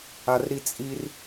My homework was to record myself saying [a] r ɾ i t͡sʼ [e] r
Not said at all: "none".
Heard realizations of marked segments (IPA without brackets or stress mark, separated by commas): a, i